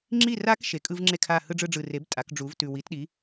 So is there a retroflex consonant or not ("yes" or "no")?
yes